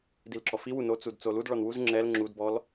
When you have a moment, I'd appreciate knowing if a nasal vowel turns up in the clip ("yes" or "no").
no